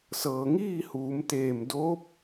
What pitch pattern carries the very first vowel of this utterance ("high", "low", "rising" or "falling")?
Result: low